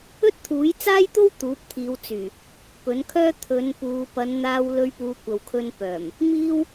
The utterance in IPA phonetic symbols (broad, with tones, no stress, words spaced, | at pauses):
ɵ˥t̚t̪ʰuː˨˥jt͡saː˥jt̪o˥w t̪uː˨˥p̚t̪ʰiː˨˧wt͡syː˨˩ | pɵ˨˥nkʰœː˥ t̪ʰɵ˨˧npuː˨˧ pɐ˨˧nn̪aː˧w lɵ˧ɥpuː˨˧kʷɐ˨wkʰɵ˧n pœː˨˩m | miː˥w